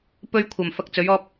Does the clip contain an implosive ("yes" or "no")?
no